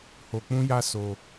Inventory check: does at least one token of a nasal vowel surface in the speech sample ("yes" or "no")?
yes